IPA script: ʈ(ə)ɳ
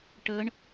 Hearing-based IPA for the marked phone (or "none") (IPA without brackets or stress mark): ə